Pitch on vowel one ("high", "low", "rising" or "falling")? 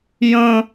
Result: high